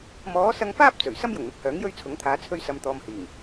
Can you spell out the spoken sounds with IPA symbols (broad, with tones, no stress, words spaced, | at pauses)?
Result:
mɔː˨˥sɐ˧ŋfaː˥p̚ t͡sɵ˨˩ɥ sɐ˥mjʊ˨˩ŋn̪ɪ˨k̚hœː˨˥ŋ jɵ˥ɥt͡sʰʊ˨˥ŋt̪ʰaː˨˧ t͡sʰɵ˧ɥsɐ˨mt̪ɔː˨m hiː˨˩ŋ